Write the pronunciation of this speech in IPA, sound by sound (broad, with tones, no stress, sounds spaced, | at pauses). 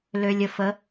l ø˨ lʲ ə˨ f ə˨˦